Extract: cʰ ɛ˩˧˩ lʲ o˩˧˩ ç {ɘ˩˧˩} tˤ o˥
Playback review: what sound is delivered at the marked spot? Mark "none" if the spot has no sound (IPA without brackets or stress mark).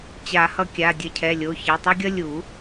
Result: ɛ˩˧˩